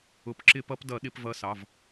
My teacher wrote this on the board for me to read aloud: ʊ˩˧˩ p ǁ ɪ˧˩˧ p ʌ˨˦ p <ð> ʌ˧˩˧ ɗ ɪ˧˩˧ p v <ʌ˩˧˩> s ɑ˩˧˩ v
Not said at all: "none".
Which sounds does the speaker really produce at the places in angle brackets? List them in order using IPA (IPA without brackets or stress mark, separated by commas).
d, ʌ˨˦